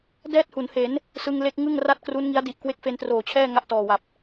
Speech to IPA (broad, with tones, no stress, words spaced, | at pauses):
dɛː˥˩t̚hu˩˦nhe˩˦n | sɯ˧ŋle˦˥k̚ ŋɯ˥˩ŋra˥˩t̚kru˦˥n ŋi˦˥a̯di˨˩ʔ kwe˦˥k̚fe˧ntroː˨˩ t͡ɕʰɛː˥˩ ŋa˥˩ʔtɔː˨˩wa˨˩p̚